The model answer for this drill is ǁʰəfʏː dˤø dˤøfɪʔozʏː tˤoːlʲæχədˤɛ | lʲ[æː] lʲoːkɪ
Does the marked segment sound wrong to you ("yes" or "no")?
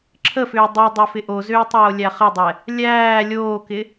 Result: no